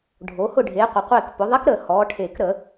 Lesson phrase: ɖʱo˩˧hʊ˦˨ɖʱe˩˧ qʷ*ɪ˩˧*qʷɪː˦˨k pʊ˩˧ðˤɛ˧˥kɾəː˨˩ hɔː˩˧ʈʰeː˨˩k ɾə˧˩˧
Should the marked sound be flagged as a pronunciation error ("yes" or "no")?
no